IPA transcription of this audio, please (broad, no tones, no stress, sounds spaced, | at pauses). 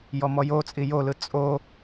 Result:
j ɔ m ɔ j o t͡sʼ i j o l ɯ t͡sʼ o